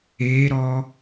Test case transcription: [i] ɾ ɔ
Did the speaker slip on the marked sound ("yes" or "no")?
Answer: yes